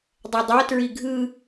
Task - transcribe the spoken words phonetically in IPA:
dˤ ɛ dˤ a t ɹ i ɡʱ ɯ

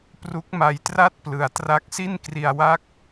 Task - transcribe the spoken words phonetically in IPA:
p r u˦˥ k̚ m a˧ j t r a˥˩ t̚ p l ɯ˩˦ a̯ t r a˦˥ k̚ s i˥˩ n k r i˧ a̯ w a˥˩ k̚

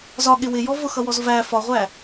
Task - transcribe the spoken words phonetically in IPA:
z ɒ ɠ ɪ w ɪ j ɔ v ʊ x ʌ w ɔ z v æ f ɒ ʁʷ æ

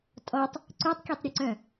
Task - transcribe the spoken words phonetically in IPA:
tʼ ɔ tˤ | ǀ ø tˤ kʲ o tˤ ɾʲ u ǀ œ̃

